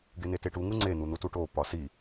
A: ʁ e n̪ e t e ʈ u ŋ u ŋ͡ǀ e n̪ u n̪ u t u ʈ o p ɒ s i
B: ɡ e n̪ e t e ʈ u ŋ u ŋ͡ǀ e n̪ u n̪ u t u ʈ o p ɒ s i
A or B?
B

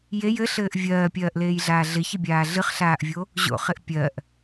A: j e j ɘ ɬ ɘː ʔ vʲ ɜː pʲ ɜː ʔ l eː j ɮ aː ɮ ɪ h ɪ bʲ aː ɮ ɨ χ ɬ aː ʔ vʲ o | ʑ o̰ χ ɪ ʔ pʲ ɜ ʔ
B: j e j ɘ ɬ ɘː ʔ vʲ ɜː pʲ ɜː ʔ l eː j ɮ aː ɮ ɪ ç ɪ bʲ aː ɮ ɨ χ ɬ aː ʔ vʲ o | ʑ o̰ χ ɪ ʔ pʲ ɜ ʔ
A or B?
B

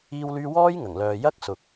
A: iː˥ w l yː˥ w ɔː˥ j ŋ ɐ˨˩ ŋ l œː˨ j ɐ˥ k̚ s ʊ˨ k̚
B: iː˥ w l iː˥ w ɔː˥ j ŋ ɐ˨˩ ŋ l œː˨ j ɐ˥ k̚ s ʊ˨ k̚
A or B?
A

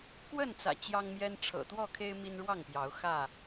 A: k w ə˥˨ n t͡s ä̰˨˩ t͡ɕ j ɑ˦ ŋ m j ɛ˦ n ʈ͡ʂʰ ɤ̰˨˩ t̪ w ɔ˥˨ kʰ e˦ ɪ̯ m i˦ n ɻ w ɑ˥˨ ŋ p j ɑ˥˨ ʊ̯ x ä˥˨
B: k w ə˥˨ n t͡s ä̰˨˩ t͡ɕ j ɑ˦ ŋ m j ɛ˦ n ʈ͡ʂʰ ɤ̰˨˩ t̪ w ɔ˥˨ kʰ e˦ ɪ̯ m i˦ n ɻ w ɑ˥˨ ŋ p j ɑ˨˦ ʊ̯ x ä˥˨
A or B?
B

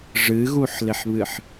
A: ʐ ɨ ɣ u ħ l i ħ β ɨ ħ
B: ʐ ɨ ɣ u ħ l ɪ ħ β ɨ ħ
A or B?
B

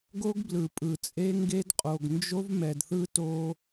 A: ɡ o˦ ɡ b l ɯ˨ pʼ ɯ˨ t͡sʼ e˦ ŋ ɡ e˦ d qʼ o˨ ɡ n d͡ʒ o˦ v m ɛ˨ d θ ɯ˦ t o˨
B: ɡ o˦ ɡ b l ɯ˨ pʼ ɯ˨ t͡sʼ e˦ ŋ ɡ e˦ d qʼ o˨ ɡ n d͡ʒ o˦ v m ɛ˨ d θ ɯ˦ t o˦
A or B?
B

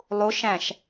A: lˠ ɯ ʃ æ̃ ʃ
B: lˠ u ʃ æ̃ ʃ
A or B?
B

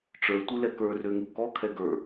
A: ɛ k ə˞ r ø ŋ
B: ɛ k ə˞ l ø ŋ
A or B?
A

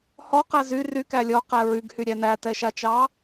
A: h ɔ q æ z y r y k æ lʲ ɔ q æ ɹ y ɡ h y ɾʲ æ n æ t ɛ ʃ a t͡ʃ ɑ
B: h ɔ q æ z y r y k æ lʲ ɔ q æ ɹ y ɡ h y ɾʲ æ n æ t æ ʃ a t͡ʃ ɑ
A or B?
A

